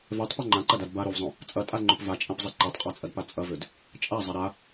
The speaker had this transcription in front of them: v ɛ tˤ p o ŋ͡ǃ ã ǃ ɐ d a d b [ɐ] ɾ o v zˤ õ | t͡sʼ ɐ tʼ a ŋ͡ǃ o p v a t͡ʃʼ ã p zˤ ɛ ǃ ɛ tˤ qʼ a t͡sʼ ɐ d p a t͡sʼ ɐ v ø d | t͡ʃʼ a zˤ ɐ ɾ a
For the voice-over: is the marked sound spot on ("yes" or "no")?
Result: no